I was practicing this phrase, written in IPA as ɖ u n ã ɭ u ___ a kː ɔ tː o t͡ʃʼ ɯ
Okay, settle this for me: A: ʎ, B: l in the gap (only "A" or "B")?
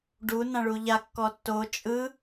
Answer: A